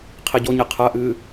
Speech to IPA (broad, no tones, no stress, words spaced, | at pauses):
qʰiɟoɲe qʰɐʔɨː